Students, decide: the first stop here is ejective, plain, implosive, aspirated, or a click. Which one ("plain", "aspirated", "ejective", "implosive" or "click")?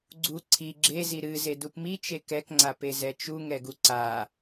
click